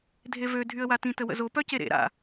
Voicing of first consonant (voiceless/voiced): voiced